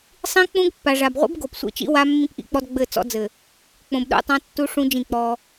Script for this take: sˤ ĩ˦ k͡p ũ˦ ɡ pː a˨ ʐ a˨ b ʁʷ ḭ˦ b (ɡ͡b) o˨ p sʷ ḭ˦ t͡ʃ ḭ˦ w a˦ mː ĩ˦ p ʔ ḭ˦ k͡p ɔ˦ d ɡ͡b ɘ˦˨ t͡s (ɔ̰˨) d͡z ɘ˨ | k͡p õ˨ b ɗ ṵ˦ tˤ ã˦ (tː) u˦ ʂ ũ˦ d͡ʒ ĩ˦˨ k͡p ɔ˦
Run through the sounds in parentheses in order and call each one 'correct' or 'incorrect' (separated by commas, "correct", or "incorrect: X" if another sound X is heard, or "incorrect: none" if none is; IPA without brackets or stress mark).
incorrect: ɡ, incorrect: ɔ̰˦, correct